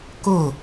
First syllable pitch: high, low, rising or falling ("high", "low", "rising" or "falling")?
falling